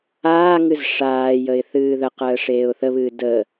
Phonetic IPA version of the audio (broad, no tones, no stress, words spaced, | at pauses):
aːŋɨz ʂaːjəɪ̯ θɨːðəqəː ʂeːʊ̯θəβɨː də